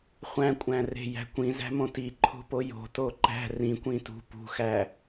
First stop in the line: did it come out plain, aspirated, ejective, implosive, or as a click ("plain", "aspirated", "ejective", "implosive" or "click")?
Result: ejective